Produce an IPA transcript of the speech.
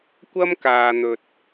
kʷ ɐ˥ m k aː˧ n̪ ɵ˧ t̚

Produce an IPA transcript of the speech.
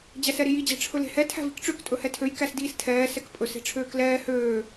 d͡ʑ æ s ɛ ɾ i j i d͡ʑ ɛ̤ ʈ͡ʂʰ ɵ l e̤ h ɛ tʰ æ̤ v i̤ k ʈ͡ʂ ø k tʼ ɵ h ɛ tʰ ø j k æ s d iː s tʰ ɛː s ɛ k pʼ ɵ s e̤ ʈ͡ʂʰ øː k l ɛː h øː

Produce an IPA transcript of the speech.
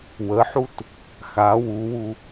w ə ħ u t | x a w u w u

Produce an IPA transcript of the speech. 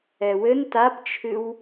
ɛ w ɘ n t a p t͡ʃʰ ɨ w

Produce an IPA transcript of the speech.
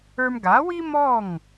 ə˞˧ m ɡ a˩˥ w i˥ m ɔ˥˩ ŋ

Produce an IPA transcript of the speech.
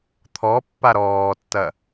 t̪ʰ ɔ pː a ɾ ɔː tː ɐ

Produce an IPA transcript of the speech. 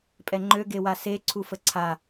pʼ ɛ ŋ͡ǃ ø ɡ e w a s e ǀʰ u f ə ǀʰ a

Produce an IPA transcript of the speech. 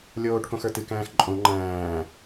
lʲ oː ʈ k õ x ə˞ t ɨ k æ̃ː x ǃʼ õ ŋ͡ǃ æ̃ː

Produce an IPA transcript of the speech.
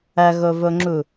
ɐ ɣ o v o ŋ͡ǁ u

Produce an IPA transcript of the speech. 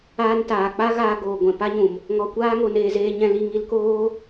aː˧ n t aː˨ k͡p a˦ ɣ aː˧ ɡ oː˨ ɡʷ ɛ̃˨ p a˦ ɲ ũ˨ m | ŋ ɔ˧ kʷ aː˦ ŋ o˧ n eː˦ z eː˦ ɲ ɛ̃˦ l i˧ ŋ i˧ l k oː˦

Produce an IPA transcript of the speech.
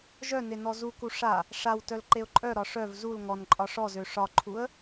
ʒ œ n e n ɔ z u k u ʂ a | ʂ a w t œ l ǃ e ʊ̯ ǃʼ œ ɾ ɒ ʂ œ v z u l ŋ ɔ n ǃʼ ɒ ʂ ɔ z ø ʂ ɒ ǃʰ u ə̯

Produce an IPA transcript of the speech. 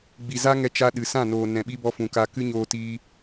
ɡ͡b i˨ z a˦ ŋ ɛ˧ t͡ʃ a˧ ɗ ɨ˨ s ã˦˨ n oː˨ n ɛ̃˨ ɓ i˧ b ɔ˧ f ũ˨ k a˧ k ɨ˦ ɲ oː˧ t iː˧

